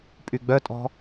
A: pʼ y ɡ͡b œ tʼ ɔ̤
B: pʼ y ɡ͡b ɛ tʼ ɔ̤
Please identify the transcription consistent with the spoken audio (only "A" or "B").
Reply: A